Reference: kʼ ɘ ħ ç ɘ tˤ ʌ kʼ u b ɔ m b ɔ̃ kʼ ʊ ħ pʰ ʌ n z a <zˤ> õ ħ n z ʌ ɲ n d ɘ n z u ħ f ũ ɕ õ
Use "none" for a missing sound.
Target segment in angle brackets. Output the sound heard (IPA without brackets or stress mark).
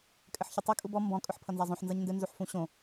zˤ